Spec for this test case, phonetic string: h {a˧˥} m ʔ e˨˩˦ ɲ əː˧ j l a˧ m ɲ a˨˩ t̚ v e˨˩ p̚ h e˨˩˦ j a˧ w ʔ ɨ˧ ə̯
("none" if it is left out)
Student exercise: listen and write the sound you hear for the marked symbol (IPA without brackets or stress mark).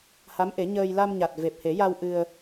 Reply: a˧˥